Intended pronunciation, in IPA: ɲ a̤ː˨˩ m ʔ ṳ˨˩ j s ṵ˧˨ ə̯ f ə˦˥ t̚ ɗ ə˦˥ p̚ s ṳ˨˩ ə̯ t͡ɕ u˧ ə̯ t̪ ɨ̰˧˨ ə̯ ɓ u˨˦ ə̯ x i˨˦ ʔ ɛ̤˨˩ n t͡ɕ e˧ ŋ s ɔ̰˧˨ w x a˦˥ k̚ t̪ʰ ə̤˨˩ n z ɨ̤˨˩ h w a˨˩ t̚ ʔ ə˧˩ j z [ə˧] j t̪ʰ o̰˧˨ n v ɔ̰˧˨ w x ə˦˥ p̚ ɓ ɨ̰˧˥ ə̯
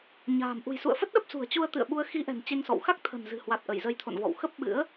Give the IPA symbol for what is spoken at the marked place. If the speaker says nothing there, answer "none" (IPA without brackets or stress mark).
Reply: ə˧